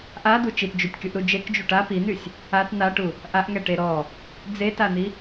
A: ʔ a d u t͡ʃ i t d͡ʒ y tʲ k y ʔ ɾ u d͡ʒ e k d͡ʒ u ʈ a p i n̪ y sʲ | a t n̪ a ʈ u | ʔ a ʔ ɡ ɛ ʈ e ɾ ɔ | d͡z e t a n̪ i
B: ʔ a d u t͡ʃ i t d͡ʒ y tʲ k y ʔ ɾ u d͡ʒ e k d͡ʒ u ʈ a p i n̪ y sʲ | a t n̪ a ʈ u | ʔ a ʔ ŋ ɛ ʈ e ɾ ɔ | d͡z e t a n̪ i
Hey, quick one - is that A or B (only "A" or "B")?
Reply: B